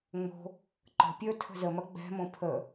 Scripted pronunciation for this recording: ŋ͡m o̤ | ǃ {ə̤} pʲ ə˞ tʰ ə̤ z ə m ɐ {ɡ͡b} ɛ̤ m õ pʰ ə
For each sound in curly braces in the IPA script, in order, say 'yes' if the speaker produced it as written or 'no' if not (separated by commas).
yes, yes